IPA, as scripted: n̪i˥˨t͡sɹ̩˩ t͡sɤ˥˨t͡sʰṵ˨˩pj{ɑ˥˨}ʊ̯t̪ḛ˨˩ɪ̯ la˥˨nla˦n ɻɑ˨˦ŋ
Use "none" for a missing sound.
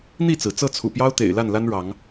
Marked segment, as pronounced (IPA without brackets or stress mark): ɑ˦